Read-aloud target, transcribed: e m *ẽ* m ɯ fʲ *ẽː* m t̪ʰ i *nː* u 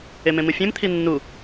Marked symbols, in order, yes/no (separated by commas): yes, no, yes